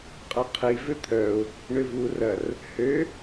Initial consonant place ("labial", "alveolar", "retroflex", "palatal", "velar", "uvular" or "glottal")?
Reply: uvular